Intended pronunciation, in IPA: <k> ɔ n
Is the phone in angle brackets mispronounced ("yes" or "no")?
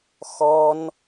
yes